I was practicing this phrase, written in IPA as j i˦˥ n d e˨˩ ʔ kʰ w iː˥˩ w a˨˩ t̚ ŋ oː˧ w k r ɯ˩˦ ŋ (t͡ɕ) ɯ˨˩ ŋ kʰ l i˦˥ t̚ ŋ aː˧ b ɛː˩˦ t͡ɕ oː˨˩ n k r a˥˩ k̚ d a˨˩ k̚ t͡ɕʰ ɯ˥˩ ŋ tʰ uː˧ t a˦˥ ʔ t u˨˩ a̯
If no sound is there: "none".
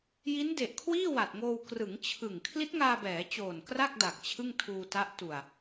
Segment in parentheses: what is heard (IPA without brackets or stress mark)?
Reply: t͡ɕʰ